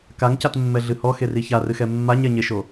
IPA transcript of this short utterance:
k a ŋ c a t mː ɛ ɮ ɨ h ɔ x e r i ç a r ɨ x ɛ mː a ɲ ɛ ɲ e ʃ o

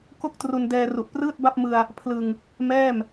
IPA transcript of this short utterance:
k o˥˩ k̚ t r u˧ n d ɛː˧ r u˨˩ ʔ p r ɯː˥˩ t̚ b a˥˩ p̚ m ɯ˧ a̯ | pʰ l ɯ˧ ŋ | m ɛː˥˩ m

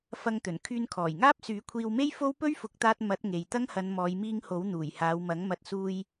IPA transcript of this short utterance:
f ɐ˧ ŋ t̪ ɵ˨˩ n kʰ yː˧ n kʰ ɔː˨˩ j ŋ aː˥ p̚ s yː˨˥ kʷʰ iː˧ w m e˥ j f o˥ w p ɵ˥ ɥ f ʊ˨˥ k̚ t̪ aː˧ t̚ m ɐ˨˥ t̚ ŋ e˨ j t̪ ɐ˥ ŋ h ɐ˨˧ n m ɔː˨˧ j m iː˧ ŋ h o˨˥ w n̪ uː˨˩ j h aː˨˧ w m ɐ˨˥ ŋ m ɐ˨˥ t̚ s uː˧ j

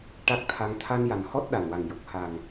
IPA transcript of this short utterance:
ʈ a˦˥ k̚ t̪ʰ a˧ ŋ t̪ʰ a˧ n j a˨˩ n h ɔ˦˥ t̚ ɗ a˨˩ n w a˨˩ ŋ j o˨˩ k̚ h a˨˩ ŋ

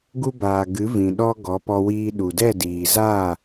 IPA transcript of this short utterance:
ɡ u˧ b aː˨ ɡ ɨ˨˦ v ĩ˨ ɗ ɔ˧ ɡ ɔ˨˦ p ɔ˧ w iː˧ ɗ u˨ d ɛ˦˨ d iː˨ z aː˦˨

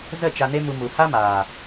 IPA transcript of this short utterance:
z ə˦˨ t͡ʃ a˧ n e˦ m u˧ m u˨ h a˦ m aː˨

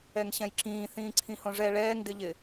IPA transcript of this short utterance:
ɛ ŋ ɕ ɛ̃ j ǁ ĩː θ ĩː ǀʰ ĩ h õ ʐ ɛ ɭ ɛː ŋ d ɪ ʎ ɪ

